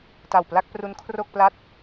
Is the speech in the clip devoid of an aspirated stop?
no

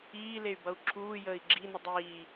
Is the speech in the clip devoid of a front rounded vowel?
no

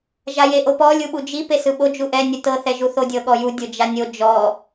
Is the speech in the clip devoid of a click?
yes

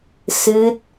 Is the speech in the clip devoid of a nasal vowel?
yes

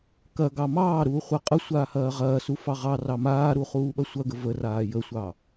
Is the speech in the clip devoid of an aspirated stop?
yes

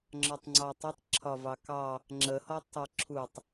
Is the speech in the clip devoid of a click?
no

